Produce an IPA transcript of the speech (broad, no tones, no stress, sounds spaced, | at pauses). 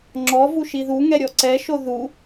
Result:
ŋ͡ǁ ɔ v u ʃ i ð u ŋ ɛ ɾʲ ɔ ǀ ɛ ʃ o ð u